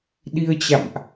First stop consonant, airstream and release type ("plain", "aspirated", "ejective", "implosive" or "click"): implosive